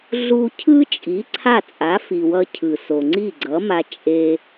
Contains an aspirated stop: yes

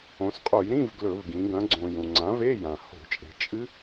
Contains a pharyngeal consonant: no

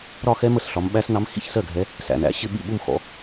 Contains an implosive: yes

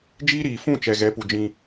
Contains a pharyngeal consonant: no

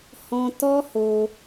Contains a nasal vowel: yes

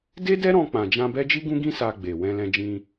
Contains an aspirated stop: no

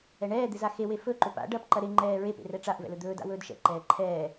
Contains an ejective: no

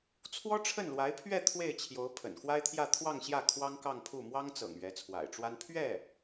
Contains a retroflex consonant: yes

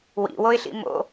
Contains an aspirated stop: no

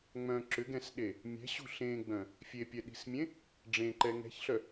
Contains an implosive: yes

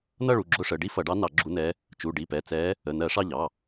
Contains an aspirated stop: no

